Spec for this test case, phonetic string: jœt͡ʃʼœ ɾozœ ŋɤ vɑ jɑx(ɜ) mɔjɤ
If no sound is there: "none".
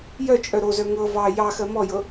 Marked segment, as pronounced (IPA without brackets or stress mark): ɜ